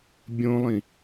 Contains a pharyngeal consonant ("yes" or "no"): no